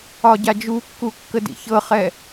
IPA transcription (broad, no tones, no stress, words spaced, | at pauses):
ɒɟad͡ʒukːu kːədḭçɤχɛ